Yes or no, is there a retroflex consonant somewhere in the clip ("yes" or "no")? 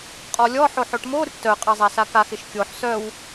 yes